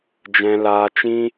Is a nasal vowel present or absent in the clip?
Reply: present